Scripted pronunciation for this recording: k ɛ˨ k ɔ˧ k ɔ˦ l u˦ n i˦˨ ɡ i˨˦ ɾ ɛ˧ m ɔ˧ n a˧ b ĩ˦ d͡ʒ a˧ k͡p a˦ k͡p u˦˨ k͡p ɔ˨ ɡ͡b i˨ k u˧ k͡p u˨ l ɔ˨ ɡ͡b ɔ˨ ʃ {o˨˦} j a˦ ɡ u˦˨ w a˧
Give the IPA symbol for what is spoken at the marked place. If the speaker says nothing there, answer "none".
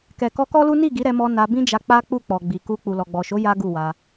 o˨˦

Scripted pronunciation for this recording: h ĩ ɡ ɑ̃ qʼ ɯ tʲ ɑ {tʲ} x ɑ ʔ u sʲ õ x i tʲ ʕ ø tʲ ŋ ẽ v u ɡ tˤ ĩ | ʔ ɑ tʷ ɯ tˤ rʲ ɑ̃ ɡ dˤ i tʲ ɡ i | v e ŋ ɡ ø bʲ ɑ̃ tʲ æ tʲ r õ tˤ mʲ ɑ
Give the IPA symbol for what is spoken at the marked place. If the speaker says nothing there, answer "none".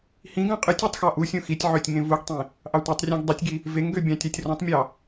tˤ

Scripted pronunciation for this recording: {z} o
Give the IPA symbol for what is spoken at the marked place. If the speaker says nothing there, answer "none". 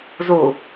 z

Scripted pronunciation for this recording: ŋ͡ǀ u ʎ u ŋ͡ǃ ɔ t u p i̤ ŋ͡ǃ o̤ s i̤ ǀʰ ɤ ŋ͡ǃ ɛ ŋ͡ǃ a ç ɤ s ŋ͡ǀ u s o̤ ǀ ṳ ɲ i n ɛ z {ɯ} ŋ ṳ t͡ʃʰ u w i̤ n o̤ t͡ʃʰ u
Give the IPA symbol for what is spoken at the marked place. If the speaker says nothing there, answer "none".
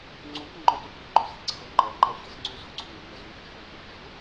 u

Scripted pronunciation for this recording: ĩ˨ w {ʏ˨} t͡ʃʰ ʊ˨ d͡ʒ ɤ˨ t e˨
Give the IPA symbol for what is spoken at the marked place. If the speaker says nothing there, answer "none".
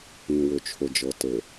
ʏ˨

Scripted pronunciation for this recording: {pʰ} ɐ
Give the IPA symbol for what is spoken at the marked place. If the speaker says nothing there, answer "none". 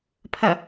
pʰ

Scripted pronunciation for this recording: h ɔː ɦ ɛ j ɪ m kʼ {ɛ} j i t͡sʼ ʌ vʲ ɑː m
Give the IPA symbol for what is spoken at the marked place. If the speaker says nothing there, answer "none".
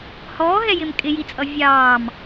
ɪ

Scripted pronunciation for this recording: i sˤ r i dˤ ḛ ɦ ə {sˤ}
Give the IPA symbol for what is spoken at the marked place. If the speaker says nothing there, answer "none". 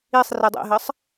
sˤ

